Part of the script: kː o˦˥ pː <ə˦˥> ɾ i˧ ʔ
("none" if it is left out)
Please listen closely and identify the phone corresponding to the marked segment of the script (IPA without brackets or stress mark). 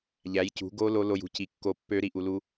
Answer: ø˦˥